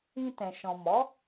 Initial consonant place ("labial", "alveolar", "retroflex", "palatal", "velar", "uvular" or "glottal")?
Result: alveolar